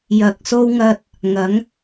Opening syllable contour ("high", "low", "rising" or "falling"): low